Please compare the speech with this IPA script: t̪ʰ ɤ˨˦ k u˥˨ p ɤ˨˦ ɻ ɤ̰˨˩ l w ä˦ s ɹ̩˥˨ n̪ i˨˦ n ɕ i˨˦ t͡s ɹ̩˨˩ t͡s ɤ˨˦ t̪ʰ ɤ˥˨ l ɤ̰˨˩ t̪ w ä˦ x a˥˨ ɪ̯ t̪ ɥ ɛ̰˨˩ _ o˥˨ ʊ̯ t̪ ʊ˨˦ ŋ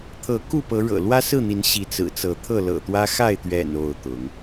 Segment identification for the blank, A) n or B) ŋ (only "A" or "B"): A